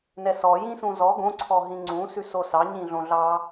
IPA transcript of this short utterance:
n ɛ s ɔ j ĩ s ũ z ɔ ɡ õ ǀʰ ɔ ɦ ĩ ŋ͡ǀ ũ s ʉ s o s ɑ ɲ ĩ ɮ õ ɮ ɑ

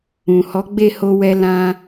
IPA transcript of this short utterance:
ũ˨ h ɔ˨˦ ɡ͡b e˦˨ h o˧ w ɛ˧ l ã˧

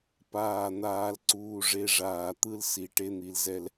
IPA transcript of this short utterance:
p aː˦˨ n̪ aː˦ l ǀ uː˦ ʐ e˦ ʐ aː˨ t̪ ɯ˦ l s i˨ ʈ e˦ n̪ i˨ l z ɛ˦ l

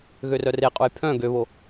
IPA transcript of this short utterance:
ɣ ø r œ r e qʼ u j pʰ œ̃ ɡ ø β o

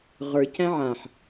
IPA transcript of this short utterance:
ʁ ə˞ c æ̃ ʕ ã ħ

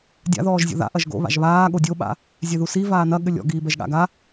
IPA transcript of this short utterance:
dʲ a̰ ð ɔː ʒ zʲ o̰ ð a̰ ʔ ɐ ʒ ɡ o̰ β a̰ ʒ β aː ɠ o dʲ o ɓ a̰ | zʲ ɛ ð u s i v aː n ɐ ɠ ɘ lʲ ɔ̰ ɡ iː b ɛ ʒ ɠ a̰ ɡ a

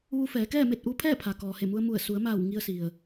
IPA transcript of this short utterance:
ʋ u˧ f ɛː˩˧ k ɛː˥˨ m e˥˨ t̚ ʔ u˧˥ pʰ ɛː˥˨ pʰ a˩ k ɔː˩ h e˧˩ m u˧ ə̯ m u˧˩ ə̯ s u˩˧ ə̯ m aː˧˩ w ŋ i˧ ə̯ s i˩ ə̯

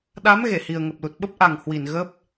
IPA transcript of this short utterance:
ɗ a˨˦ m ɣ e˧˩ h i˨˩ ə̯ ŋ ə˨˩ p̚ l u˨˩ t̚ ɓ ə˦˥ p̚ ʔ a˨˩ ŋ h w i˧˩ n ɣ ə˦˥ p̚

